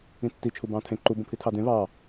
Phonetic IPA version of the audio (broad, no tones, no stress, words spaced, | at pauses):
ĩtːi t͡ʃʰubɑ̃tʰẽ ǃu bõpʰitʰɑdẽ βɑ